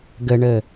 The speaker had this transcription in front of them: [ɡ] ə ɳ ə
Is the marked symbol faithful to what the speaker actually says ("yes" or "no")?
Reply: yes